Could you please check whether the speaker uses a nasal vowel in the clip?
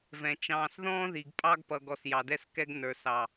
yes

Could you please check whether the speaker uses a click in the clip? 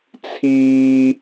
no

